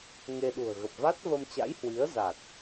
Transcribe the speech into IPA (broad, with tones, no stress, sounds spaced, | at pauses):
ŋ e˧ ɗ ṳ˨˩ ə̯ ɣ ə˨˩ p̚ v a˦˥ t̚ v ə˧ m t͡ɕ a̰˧˥ j h w i˨˦ ə̯ z a˨˩ t̚